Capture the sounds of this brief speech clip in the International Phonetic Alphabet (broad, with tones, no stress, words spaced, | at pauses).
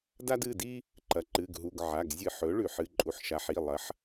da˦dɨ˩˧˩di˦ | ǃɐ˩˥ǃɨ˩˧˩ɡɦu˩˧˩ɡʕa˩˧˩ɡ zʲɨ˧˩˧ħ ɵ˩˥ɭʉ˧˩˧ħɨ˩˧˩ ǃʼu˩˥ħʃa˩˥ħi˩˧˩ lˠɐ˩˥ħ